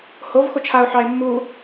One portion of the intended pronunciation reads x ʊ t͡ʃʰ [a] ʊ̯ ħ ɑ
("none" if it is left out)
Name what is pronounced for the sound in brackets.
a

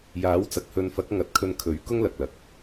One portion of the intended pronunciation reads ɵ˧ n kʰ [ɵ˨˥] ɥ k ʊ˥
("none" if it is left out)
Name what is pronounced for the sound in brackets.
ɵ˨˥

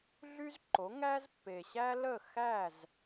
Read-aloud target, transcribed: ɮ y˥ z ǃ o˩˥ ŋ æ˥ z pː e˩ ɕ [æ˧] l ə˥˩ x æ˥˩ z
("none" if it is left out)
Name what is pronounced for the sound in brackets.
æ˥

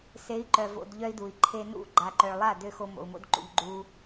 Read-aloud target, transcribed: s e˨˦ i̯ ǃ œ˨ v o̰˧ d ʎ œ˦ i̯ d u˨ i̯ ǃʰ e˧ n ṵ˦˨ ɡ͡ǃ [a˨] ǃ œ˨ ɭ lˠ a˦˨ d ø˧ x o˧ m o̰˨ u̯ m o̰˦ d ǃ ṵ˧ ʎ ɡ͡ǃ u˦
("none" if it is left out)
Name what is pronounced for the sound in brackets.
a˨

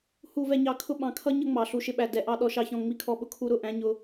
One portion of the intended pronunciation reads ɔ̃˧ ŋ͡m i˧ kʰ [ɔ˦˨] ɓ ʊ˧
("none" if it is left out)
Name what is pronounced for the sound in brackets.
ɔ˧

